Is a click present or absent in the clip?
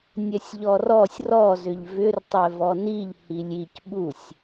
absent